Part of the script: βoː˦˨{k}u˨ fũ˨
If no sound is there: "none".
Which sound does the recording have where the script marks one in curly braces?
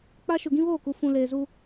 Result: k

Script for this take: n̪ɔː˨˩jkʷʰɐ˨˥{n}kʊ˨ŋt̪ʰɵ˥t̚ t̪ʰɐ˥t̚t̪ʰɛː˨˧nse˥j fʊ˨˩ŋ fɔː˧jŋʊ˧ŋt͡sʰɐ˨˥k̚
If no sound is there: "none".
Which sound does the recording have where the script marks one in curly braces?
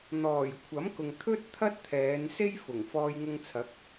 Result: m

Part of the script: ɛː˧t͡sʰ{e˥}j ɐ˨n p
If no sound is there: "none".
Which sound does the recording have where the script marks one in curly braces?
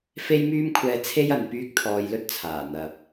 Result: e˥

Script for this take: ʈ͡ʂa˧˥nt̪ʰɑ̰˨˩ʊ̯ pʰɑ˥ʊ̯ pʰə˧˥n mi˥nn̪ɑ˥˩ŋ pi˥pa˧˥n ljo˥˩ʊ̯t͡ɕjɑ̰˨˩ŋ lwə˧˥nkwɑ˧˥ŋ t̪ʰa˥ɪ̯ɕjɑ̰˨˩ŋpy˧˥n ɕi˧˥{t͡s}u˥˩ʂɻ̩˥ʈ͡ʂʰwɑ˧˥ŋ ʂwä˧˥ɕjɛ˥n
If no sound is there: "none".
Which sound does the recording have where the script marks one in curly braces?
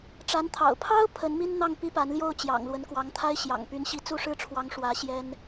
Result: t͡s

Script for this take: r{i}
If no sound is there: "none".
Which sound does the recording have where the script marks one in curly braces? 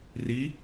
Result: i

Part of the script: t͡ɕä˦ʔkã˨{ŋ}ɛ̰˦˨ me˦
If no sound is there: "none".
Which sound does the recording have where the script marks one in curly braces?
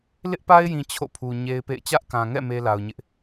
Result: ŋ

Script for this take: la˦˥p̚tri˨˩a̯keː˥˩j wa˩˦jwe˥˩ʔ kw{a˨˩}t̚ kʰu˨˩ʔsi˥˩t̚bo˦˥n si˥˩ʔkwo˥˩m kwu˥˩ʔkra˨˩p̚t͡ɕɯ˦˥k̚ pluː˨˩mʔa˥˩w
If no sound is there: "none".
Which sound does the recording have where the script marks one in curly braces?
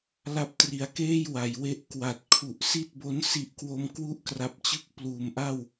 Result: a˨˩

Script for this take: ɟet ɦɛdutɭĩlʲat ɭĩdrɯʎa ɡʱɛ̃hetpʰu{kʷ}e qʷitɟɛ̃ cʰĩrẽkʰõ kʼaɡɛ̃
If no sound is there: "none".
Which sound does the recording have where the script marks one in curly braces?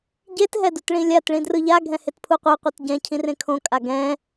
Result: qʷ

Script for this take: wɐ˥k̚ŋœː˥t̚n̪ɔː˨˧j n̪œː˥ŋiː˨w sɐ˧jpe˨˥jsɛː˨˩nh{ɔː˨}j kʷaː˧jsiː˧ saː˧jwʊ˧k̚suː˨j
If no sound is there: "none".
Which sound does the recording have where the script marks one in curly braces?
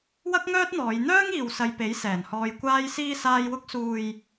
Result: ɔː˧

